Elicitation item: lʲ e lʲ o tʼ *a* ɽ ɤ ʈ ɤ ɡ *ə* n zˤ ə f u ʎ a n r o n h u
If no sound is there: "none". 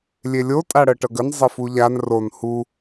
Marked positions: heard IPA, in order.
a, ə

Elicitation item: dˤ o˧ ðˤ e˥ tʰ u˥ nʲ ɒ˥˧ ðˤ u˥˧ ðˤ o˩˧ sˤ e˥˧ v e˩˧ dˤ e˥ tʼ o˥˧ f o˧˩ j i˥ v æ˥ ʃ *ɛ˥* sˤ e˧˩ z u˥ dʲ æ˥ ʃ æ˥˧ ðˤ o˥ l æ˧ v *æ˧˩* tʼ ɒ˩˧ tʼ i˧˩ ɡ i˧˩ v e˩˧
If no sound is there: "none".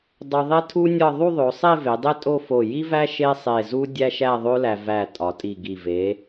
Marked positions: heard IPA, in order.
e˥, æ˧˩

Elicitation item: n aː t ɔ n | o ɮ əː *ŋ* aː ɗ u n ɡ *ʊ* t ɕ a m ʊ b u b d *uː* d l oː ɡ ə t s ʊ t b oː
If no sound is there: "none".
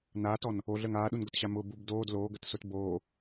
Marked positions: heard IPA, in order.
ŋ, ʊ, oː

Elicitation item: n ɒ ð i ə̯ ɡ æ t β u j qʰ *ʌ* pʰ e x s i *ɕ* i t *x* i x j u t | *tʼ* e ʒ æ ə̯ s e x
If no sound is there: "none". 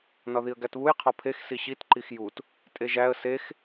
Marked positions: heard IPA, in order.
ɒ, ɕ, ǃ, tʼ

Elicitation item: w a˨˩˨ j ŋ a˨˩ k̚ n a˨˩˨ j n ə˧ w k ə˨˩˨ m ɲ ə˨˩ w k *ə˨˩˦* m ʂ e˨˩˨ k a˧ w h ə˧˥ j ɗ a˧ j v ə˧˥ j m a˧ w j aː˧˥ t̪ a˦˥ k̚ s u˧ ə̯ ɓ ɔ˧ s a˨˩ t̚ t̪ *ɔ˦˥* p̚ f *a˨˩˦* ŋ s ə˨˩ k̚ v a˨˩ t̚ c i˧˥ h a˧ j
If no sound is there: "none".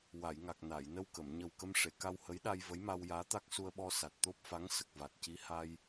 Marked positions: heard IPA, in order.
ə˧, o˦˥, a˧˥

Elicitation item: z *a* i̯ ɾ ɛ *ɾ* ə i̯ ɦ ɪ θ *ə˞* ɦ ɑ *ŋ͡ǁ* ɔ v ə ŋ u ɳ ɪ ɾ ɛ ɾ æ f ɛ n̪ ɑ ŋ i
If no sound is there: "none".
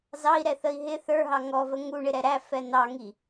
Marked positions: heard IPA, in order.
ɑ, θ, ə˞, ŋ

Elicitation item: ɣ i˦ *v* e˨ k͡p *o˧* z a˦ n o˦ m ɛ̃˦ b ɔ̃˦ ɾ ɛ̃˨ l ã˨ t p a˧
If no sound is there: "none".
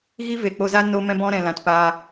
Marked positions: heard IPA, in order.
v, o˧

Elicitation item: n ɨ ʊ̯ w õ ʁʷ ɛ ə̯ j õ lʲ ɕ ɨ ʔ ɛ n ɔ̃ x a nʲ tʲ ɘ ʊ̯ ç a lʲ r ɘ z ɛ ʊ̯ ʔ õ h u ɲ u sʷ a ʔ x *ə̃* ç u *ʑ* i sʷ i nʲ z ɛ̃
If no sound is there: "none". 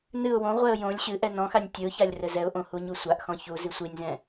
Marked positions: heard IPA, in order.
ɔ̃, z

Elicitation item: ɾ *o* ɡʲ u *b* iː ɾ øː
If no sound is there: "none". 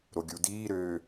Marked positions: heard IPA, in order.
o, d

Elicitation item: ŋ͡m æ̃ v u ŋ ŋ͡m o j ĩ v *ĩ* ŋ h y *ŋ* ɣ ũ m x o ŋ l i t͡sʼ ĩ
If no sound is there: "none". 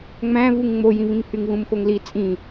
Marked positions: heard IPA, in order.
ĩ, ŋ

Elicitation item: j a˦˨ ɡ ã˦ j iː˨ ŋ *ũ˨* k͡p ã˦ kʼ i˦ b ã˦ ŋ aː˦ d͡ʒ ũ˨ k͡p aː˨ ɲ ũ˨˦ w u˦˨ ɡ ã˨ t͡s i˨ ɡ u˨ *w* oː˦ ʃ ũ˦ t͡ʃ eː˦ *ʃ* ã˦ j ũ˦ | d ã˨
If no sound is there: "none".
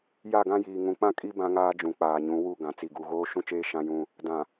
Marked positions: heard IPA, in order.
ũ˨, ɣ, ʃ

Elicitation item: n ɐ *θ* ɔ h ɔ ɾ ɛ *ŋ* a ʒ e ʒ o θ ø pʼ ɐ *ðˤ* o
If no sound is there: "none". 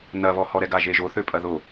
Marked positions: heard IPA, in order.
β, ɡ, ð

